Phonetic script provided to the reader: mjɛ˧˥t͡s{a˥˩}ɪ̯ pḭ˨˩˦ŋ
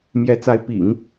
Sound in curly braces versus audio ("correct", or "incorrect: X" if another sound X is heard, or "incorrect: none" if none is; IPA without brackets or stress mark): incorrect: a˧˥